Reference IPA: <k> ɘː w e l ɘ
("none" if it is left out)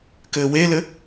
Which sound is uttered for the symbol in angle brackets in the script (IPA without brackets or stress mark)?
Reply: k